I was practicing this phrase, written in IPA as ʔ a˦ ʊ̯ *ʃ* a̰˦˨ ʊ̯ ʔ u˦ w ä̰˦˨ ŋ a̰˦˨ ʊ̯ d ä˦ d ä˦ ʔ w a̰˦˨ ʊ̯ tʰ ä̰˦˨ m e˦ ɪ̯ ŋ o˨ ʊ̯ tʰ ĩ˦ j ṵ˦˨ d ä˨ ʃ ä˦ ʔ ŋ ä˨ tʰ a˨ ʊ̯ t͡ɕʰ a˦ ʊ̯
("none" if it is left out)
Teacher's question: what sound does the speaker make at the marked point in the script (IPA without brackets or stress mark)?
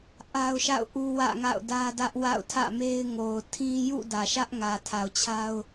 ʃ